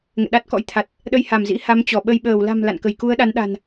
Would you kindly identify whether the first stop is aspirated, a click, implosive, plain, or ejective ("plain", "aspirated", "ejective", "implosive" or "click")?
implosive